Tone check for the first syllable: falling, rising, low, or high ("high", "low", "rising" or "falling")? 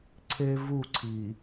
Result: high